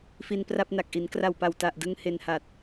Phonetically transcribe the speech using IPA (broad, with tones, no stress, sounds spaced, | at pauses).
f i˧ n p r a˥˩ p̚ n a˨˩ k̚ ʔ i˩˦ n k r a˨˩ w p a˨˩ w t a˨˩ ʔ d ɯ˧ ŋ h e˧ n h a˨˩ t̚